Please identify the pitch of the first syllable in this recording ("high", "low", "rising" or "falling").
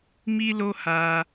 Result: high